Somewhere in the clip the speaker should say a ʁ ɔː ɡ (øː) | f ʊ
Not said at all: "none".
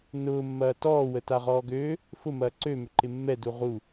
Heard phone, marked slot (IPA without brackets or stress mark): øː